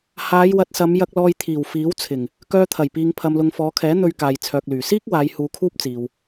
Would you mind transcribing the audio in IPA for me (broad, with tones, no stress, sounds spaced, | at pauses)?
h aː˨˧ j w ɐ˨ t̚ s ɐ˨˧ m j ɐ˧ k̚ l ɔː˧ j t̪ʰ iː˨˩ w f iː˨˥ w t͡sʰ ɪ˨˩ ŋ | k œː˧ t̪ʰ ɐ˨˩ j p iː˨ ŋ pʰ ɐ˨ m l ʊ˨ ŋ f ɔː˨˧ kʰ ɛː˨˥ n̪ ɵ˧ ɥ k aː˨ j t͡sʰ œː˨ k̚ l yː˨˩ s iː˥ k̚ w aː˨˧ j h uː˧ kʰ uː˥ p̚ t͡s iː˨ w